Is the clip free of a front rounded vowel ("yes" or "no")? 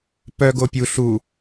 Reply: no